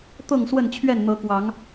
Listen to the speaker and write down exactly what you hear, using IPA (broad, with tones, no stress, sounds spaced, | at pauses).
t̪ ɤ˥˨ ŋ s w ə˥˨ n t͡ɕʰ ɥ ɛ˥˨ n n̪ ɤ˨˦ k w ɑ˨˦ ŋ